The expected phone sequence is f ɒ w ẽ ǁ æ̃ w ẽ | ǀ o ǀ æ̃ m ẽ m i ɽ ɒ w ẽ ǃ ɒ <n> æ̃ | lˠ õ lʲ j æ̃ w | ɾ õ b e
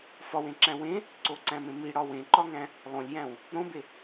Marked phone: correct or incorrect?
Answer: incorrect: ŋ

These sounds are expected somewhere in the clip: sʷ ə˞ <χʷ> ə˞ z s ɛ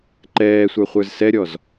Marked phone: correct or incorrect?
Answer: correct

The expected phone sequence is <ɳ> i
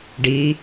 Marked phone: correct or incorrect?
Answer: incorrect: ɖ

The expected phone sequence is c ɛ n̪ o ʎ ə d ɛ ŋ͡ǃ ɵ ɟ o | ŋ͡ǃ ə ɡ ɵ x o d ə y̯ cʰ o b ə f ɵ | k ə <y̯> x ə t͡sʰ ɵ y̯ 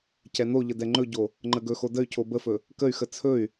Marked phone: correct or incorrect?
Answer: correct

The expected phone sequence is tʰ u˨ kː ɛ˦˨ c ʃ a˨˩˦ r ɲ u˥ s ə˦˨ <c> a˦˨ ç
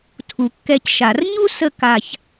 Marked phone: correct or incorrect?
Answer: incorrect: k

